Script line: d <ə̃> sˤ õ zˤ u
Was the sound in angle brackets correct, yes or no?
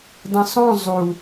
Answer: yes